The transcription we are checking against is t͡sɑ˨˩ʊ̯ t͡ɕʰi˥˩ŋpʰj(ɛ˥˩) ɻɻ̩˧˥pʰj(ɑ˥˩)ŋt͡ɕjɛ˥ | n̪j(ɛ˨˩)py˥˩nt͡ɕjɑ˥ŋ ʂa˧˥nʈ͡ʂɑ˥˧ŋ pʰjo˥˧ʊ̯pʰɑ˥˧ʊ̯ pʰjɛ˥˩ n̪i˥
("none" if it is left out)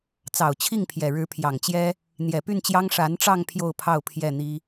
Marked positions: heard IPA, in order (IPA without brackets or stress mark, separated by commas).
ɛ˨˩, ɑ˨˩, ɛ˨˩